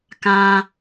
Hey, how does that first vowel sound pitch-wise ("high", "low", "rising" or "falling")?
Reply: high